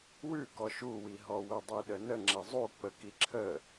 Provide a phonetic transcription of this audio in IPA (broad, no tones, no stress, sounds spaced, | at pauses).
w ʉ k ɔ ʃ u w i ɦ ɔ w ə dˤ i ɗ ə n ə ŋ͡ǁ ɛ zˤ u k͡p ə k i ǁʰ ə